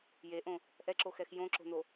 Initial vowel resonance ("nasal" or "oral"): oral